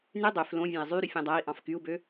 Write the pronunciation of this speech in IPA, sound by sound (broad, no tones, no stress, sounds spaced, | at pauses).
n y dˤ ø f l õ vʲ æ̃ i̯ zˤ y ɾ y fʲ õ dˤ æ i̯ ʔ ɑ̃ f k y u̯ b ø